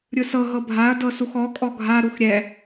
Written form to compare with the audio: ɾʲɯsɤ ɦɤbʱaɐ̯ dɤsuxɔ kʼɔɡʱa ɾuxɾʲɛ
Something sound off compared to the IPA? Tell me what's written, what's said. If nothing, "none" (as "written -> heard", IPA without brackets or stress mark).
none